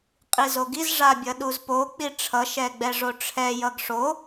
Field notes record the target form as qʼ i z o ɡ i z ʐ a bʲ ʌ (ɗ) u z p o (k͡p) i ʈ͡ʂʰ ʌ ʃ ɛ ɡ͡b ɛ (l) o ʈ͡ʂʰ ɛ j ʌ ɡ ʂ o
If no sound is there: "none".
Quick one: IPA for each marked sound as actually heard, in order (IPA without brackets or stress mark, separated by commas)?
ɗ, k͡p, ʐ